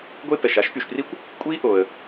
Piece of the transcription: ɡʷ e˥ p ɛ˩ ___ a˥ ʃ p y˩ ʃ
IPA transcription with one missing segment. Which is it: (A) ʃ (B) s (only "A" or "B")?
A